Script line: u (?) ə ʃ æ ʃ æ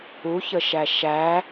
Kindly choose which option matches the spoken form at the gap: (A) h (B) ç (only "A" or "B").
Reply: B